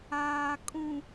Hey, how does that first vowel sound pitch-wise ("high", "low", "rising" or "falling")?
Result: low